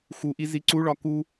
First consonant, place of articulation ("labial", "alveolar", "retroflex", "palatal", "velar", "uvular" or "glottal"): velar